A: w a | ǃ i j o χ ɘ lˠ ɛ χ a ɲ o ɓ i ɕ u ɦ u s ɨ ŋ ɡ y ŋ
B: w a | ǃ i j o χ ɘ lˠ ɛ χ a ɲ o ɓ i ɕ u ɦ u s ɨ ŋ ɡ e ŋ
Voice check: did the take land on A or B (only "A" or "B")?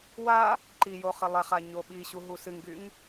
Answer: A